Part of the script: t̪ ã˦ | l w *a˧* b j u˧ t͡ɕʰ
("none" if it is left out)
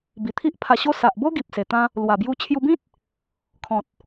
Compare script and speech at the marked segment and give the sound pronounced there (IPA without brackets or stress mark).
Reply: a˨˩